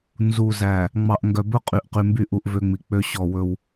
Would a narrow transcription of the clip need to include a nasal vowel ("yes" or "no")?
no